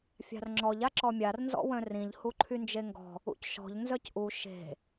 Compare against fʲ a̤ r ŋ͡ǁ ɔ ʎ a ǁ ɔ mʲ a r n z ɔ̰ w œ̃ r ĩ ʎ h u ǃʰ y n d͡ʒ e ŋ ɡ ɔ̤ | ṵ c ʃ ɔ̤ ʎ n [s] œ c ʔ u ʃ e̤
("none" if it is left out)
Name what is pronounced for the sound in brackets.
z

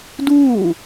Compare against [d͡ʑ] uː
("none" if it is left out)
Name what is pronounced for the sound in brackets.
d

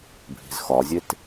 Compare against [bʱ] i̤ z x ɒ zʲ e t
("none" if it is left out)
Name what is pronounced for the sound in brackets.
bʱ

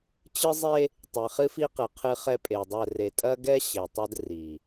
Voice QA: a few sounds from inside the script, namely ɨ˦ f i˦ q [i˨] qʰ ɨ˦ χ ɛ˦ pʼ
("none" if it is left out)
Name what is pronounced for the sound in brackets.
ɨ˨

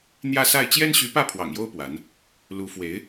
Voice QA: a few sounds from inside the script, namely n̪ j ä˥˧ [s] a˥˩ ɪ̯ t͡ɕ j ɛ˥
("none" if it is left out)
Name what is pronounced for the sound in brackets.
s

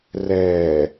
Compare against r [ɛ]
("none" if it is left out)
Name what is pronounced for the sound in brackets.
ɛ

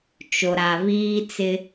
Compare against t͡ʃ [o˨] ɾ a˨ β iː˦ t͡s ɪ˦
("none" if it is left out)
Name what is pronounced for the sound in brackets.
o˨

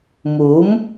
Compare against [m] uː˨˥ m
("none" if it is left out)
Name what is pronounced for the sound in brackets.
m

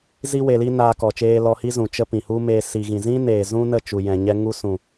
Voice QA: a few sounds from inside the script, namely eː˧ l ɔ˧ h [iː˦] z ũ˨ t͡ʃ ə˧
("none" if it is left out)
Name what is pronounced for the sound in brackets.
i˦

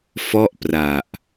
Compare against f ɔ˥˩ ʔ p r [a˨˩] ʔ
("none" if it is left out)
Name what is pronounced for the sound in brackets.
a˨˩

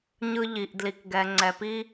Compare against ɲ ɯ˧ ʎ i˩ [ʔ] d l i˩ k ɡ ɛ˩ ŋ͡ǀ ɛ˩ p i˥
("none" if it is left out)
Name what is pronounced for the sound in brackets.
ʔ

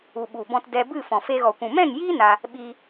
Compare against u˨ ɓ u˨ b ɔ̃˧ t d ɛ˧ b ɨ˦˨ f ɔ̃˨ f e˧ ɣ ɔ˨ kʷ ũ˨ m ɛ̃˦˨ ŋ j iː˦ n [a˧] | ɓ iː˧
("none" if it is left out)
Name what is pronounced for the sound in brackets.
a˧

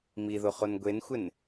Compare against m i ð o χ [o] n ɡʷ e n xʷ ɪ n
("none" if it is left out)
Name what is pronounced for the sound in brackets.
o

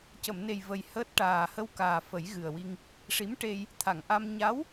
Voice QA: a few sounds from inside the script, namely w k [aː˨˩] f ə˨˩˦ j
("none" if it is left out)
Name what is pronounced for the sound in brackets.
aː˨˩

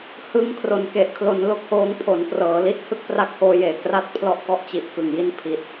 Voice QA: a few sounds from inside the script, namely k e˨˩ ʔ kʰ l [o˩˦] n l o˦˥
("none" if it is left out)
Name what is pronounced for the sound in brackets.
o˩˦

